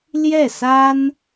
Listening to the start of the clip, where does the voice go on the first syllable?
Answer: falling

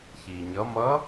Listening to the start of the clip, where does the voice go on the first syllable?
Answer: low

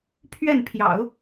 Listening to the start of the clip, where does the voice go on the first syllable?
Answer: falling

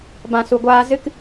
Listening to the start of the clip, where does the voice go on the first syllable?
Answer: low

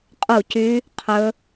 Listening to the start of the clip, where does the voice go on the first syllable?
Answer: falling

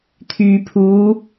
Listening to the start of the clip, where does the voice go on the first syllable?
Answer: low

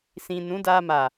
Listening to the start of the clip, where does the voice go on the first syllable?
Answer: low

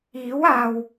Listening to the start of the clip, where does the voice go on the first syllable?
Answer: rising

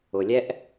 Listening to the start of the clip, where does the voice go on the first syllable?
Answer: low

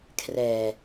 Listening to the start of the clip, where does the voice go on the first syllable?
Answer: low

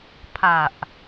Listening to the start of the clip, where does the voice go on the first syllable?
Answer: low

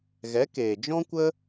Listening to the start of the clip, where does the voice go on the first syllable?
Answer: rising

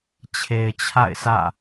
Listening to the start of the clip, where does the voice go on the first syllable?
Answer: low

